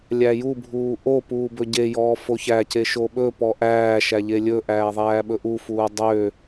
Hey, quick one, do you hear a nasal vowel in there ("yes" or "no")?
no